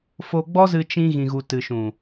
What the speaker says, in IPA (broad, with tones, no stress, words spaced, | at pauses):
fo˧ɡ͡bɔ˦zɨ˧ t͡ʃĩ˧ɣĩ˨ɣu˨ tɨ˨ʃũ˨